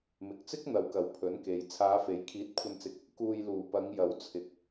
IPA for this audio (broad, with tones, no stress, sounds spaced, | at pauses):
m ɪ˨ k̚ t͡s ɪ˥ k̚ n̪ ɐ˨˧ w k ɐ˨˥ w pʰ ɵ˨˥ n k e˨ j t͡sʰ aː˨˧ f e˨˥ j kʰ iː˨˥ t̚ kʷʰ ɐ˧ n t͡s ɪ˧ k̚ | k uː˨ j l uː˨˩ p ɐ˨˧ ŋ j ɐ˨˥ w t͡sʰ ɪ˨˥ k̚